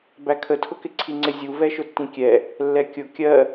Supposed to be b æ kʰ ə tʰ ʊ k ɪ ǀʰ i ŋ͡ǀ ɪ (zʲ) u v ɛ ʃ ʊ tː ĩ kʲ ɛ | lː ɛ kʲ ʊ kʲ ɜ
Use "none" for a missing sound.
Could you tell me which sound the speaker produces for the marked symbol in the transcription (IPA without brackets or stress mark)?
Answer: zʲ